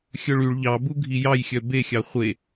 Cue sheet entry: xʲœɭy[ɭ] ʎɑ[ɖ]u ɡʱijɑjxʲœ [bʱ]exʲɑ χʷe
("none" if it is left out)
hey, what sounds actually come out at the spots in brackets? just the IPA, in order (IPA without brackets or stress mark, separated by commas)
ɭ, b, b